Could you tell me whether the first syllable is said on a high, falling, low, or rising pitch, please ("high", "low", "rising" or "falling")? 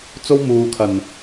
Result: high